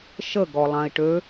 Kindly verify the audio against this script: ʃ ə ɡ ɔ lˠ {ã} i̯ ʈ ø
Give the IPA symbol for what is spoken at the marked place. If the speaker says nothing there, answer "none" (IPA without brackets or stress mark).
ã